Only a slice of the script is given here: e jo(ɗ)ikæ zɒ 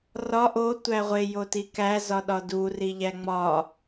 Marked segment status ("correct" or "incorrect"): incorrect